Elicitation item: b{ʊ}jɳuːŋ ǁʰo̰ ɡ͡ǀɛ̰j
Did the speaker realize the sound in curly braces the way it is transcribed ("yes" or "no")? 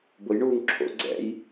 yes